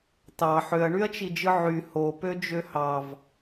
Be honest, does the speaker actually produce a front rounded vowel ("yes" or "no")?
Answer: yes